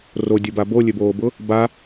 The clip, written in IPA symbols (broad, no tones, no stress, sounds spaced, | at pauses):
r o dʲ ʊ b a b o lʲ ø b oː b ʊ | b a